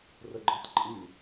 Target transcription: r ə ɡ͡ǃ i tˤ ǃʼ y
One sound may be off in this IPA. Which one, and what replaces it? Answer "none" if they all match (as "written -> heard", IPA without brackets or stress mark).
i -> y